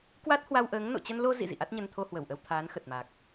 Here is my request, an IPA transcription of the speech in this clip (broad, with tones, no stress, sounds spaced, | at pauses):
k w a˦˥ t̚ h w a˧ w ʔ əː˨˦ ŋ n o̰˧˨ t͡ɕ ə˧ n l o˧ z ḭ˧˨ z ḭ˧˨ ʔ a˦˥ t̚ ɲ ə˧ n t̪ʰ o˧ h w ə˧˩ w ʔ ə˧ w t̪ʰ aː˨˦ n x ə˨˩ t̚ m a˨˩ k̚